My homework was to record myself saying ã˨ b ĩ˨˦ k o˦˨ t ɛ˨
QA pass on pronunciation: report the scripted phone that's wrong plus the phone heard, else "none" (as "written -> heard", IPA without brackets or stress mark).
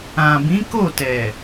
none